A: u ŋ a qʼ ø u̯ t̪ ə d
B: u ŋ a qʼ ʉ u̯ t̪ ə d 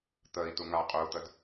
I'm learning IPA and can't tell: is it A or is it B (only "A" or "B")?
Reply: A